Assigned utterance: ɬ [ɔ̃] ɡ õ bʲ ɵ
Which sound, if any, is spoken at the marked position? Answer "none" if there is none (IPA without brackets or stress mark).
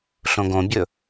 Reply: õ